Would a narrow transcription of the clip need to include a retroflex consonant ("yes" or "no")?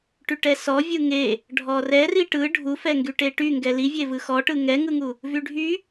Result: yes